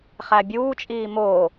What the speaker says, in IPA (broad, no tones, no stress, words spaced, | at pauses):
χæbʲuːt͡ʃʼiː mo